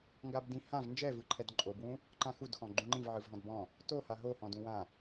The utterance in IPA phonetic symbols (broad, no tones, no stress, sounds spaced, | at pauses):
ŋ ɡ a b d ĩ h ã v n d͡ʒ ɛ v ɯ ǃʰ ɛ d ǃʼ o b w ũ | ǃ ã x u d x ɔ̃ ɡ͡ǃ ũ ŋ͡ǃ ĩ v ʕ ɯ v ɦ ɔ̃ d b ɔ̃ | t o h a ɦ o h ɔ̃ d ũ w ã